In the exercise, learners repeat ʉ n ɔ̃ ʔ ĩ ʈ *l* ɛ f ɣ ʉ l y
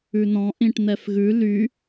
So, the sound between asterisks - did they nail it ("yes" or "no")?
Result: no